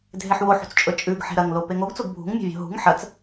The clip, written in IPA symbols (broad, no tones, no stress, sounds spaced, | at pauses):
dʱ e ħ w o ħ ṳ t͡s t͡ʃʼ ɵ t͡ʃʼ ʉ ɡ ħ e̤ ɾ ɐ ŋ l o p e ŋ o ɡ t͡s o ɡ bʱ ṳ ŋ mʲ o̤ vʲ o̤ ɦ ṳ ŋ ħ ɐ t͡s